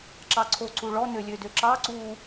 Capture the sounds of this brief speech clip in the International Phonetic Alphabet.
ǁ ɑ ǀʰ o ǀ u ɭ ɔ n ø lʲ ø d ø ǁ ɑ ǀ u

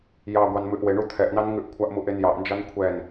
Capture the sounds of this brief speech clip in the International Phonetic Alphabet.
j ɑ ɡʷ ɑ n m ʉ ʔ w e ɳ u t̪ʰ ɛ ʔ n ɑ n ŋ ʉ ʔ kʷʰ a ʔ m u ʔ e n j ɑ ʔ n d͡ʒ ɑ n kʷʰ ɛ n

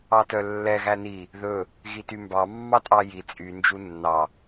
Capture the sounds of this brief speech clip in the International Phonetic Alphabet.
ɑ t œ lː ɛ ɣ æ n i | ð ɵ | ɣ i t y m b ɑ mː ɑ tʼ ɑ j i t͡sʼ y n d͡ʒ u nː ɑ

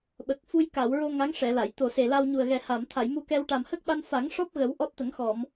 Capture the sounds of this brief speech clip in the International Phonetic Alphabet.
ɓ ə˨˩ k̚ f u˧ j k a˨˩˨ w ɹ o˧ ŋ a˧˥ ŋ ʂ ɛ˨˩˨ l a˨˩˨ j t̪ o˨˩ s e˨˩ l a˧ w ɲ u˨˩ ə̯ ɣ ɛ˨˩ h a˨˩˨ m t̪ʰ a˨˩˨ j m u˧ k ɛ˧ w ʈ a˨˩ m h ə˦˥ k̚ ɓ a˧ n f a˨˩˦ ŋ ʂ ɔ˦˥ p̚ ɣ ə˨˩˦ w ʔ ɔ˦˥ t̚ t̪ ə˨˩˦ ŋ x ɔ˨˩˨ m

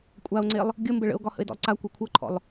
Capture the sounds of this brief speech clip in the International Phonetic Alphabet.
kʷʼ a o̯ ŋ͡ǀ e lˠ | ɡʲ ə m b ə ɭ ə̰ o̯ ɡ ɒ h ə̰ e̯ d ɔ̰ lˠ ǀ a kʷ e kʷʰ ɤ ǃʰ ɔ̰ lˠ

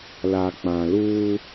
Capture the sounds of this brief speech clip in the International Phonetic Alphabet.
l a˨ k͡p ã˨ l uː˦

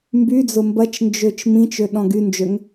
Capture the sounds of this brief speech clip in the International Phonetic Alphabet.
m b y d͡z ʊ m b ɐ t͡ʃ n d͡ʒ ø t͡ʃ m ĩ t͡ʃ ø ɗ ɔ̃ ɡ y n d͡ʒ ø ŋ

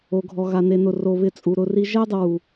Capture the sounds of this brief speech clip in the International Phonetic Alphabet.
o˨ ɡʱ ɔ˨ ɣ a˧ n e˧ n ʊ˦˨ r o˧ β ɪ˧ t͡sʼ u˨ ɾ ʊ˧ r i˦ ʒ ɛ˦ dˤ ɪ˧ w u˨

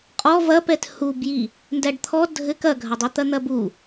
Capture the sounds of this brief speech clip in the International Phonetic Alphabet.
qʼ ɔ v ɐ p ɛ t h u b j i | n d æ ɖ t̪ʰ ɔ dʱ ɘ k ɐ ɡʱ ɐ dˤ i t̪ ɐ n̪ ɐ b u

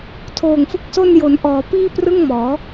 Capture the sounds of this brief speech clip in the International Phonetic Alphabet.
tʰ oː˨˩ ŋ f ɯ˦˥ k̚ s o˥˩ n j o˩˦ n ʔ ɔː˩˦ p iː˥˩ p r ɯ˥˩ ŋ m ɔː˩˦

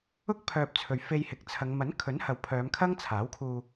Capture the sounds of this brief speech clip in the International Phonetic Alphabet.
ʊ˥ k̚ pʰ œː˨ p̚ t͡sʰ ɵ˨ ɥ f e˧ j h ɪ˨ k̚ t͡sʰ ɐ˨˧ ŋ m ɐ˨˥ n kʰ ɵ˨˥ n h ɐ˨ w pʰ œː˨˧ m kʰ ɐ˥ ŋ t͡sʰ aː˨˥ w kʰ uː˧

